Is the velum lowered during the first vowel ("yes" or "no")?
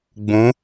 yes